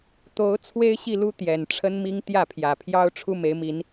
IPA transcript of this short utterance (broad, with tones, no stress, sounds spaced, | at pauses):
t̪ o˨˦ ʊ̯ t͡sʰ w e˦ ɪ̯ ɕ i˥˨ l u˦ t̪ j ɛ˨˩ n ʈ͡ʂʰ ə˦ n m i˦ ŋ t̪ j ä˥˨ pʰ j ä˨˩ pʰ j ɑ˦ ʊ̯ ʈ͡ʂʰ u˦ m e˨˦ ɪ̯ m i˨˦ n